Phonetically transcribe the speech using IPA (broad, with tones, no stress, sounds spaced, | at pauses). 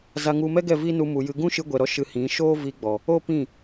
z a˧ ŋ u˧ m ɛ˦ ɡ ɛ˦˨ v i˦ n u˧ m u˨ j ɨ˧ ɡ ũ˦ ʃ ɨ˧ ɡʷ ɛ˨ ɾ ɔ˧ ʃ ɨ˧ h ĩ˨˦ ʃ oː˦ v i˧ ɡ͡b ɔ˨ | o˦ p ĩ˦˨